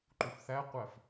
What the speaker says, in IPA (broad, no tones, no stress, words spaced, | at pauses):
ǃufθæqʷæf